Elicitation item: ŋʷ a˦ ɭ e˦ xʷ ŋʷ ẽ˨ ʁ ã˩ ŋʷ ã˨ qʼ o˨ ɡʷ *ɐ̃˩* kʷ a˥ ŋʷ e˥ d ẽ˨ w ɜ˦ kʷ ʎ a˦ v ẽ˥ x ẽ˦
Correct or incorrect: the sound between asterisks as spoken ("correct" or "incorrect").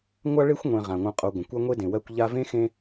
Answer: incorrect